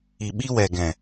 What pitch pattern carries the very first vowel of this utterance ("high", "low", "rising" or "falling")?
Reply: low